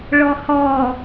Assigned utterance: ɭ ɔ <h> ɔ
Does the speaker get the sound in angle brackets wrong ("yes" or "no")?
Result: no